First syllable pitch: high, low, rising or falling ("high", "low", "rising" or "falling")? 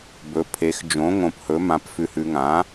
rising